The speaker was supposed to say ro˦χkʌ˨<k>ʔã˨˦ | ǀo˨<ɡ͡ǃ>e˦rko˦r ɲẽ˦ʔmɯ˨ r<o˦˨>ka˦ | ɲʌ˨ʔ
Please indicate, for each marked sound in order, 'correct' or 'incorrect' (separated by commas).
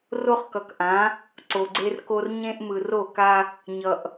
correct, incorrect, correct